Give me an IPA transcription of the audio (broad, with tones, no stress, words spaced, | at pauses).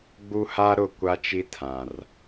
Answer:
ɡ͡bu˦ha˦ɾʊ˦˨ kʷa˦t͡ʃi˦ tʰã˨r